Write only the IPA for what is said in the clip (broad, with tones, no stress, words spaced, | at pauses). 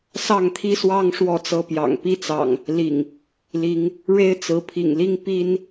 sɑ˥˨ŋt̪ʰi˦swɑ˦ŋ ʂwɔ˥˨t͡sɤ˦ pjɑ̰˨˩ŋpi˦t͡sɑ̰˨˩ŋ | lḭ˨˩ŋ | li˨˦ŋ | ɻe˦ɪ̯t͡sɹ̩˨˦pʰḭ˨˩ŋli˦ŋ pi˦n